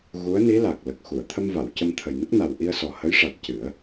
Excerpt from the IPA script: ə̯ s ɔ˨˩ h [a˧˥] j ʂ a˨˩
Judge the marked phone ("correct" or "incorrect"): incorrect